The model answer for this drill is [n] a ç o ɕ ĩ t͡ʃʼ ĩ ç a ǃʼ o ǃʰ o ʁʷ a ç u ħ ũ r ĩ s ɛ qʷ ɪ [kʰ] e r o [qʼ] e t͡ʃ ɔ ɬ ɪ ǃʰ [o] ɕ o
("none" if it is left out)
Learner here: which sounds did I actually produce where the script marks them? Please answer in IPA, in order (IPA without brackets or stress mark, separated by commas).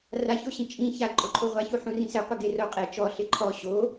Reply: r, ɡ, qʼ, ɔ